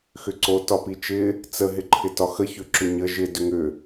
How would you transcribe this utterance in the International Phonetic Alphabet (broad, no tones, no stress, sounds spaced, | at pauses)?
x ʏ ǀ o t ɒ p i t͡ʃ ɪ | t͡s ə ɦ ɪ ǃʰ ɪ t ɒ x ə ç ʏ ǁ ʏ ɲ ə ʒ ɪ d ʏ ŋ ʏ